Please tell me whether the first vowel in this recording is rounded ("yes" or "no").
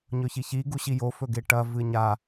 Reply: yes